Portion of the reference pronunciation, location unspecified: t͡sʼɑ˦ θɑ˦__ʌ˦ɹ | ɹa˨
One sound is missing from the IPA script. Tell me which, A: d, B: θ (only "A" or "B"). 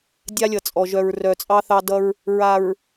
A